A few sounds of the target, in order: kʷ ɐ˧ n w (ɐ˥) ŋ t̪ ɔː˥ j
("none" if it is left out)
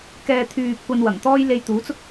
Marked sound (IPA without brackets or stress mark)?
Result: ɐ˨˩